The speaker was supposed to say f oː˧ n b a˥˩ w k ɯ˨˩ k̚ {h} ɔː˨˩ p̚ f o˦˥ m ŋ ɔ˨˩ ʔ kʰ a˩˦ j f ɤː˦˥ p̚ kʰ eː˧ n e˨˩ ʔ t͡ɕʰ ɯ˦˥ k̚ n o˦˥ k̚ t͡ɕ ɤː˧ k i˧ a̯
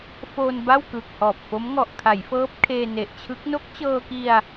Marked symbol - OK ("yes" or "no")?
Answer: yes